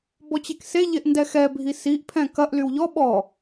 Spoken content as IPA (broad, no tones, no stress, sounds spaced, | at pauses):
b ɔ t͡ɕ e k s e ʎ e ʔ n d ɛ x ɛ bʱ i s i ʔ pʰ ɛ̃ k ɐ ʔ l y w ʎ ɔ ɓ ɔ